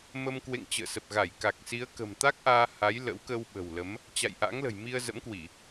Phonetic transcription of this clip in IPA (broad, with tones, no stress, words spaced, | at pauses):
mə˧m kwḛ˧˨ŋt͡ɕə̰ː˧˨sə˨˩p̚ɣa˧˩j ka˨˩k̚si˨˦ə̯kə̤˨˩m t̪a˦˥k̚ʔaː˧ ha˨˦jlə̰˧˥wkə˧w ɓə̤˨˩wlə˨˦m | t͡ɕa̰˧˨jʔa̰˧˥ŋlə̤˨˩j mi˧ə̯zə̰˧˥mkwi˧˩˨